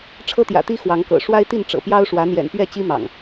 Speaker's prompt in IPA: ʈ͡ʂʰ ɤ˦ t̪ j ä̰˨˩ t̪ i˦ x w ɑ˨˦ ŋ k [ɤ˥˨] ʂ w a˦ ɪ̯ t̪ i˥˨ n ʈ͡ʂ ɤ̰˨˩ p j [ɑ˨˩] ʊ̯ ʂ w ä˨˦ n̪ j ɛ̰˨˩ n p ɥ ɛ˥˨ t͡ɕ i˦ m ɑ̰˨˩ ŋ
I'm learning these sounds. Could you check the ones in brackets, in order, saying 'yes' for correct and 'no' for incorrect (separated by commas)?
no, no